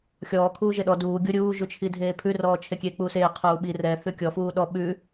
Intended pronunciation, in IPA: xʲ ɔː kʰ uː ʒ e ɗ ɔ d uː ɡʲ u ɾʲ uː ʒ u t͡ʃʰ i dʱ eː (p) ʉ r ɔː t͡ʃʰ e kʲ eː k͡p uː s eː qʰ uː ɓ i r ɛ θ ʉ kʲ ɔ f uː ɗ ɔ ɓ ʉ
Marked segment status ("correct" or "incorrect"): incorrect